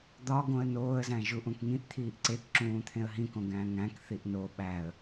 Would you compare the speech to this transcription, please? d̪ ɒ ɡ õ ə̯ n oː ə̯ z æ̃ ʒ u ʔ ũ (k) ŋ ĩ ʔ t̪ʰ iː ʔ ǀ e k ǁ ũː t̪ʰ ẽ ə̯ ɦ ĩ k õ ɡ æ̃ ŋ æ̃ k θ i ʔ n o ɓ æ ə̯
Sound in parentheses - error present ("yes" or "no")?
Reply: no